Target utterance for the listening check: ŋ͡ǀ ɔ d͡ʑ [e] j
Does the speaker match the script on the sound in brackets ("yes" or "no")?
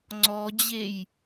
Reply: yes